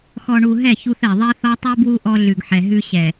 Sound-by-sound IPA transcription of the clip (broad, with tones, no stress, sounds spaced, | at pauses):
x ɔ˨ ɳ u˨ ɦ ɛ˦˨ ç u˦ θ ɛ˨ ðˤ ɛ˦ θ ɔ˦ tˤ ʉ˦ b w u˦ ʔ ɔ˦ ɮ ʉ˨ ɡ ħ ɛ˨ ɦ ʉ˦ ɕ ɛ˨